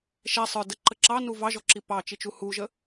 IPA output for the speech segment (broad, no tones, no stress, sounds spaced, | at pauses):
ʃ ɛ sˤ ə˞ d ə ǃ ə ǁ ɑ n u v ɑ ʒ ɔ ǁ i p ɑ t͡ʃ i t͡ʃ u h u ʒ ə